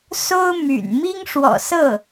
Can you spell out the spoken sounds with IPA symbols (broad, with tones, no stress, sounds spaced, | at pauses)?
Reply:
s o˥ ʊ̯ m y̰˨˩ n m i˥ ŋ ʂ w ɔ̰˨˩ s ɤ˥˩